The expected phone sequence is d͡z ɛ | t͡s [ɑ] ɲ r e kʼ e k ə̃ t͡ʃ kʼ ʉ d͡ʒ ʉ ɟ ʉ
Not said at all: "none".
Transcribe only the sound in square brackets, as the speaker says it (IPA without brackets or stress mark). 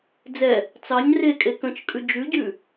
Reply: ɑ